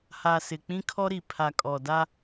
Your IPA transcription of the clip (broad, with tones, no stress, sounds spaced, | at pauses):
h a˨ s ɪ˨ k͡p ĩ˦ kʰ ɔ˦ ɾ i˨ pʰ a˨ kʼ ɔ˨ d a˦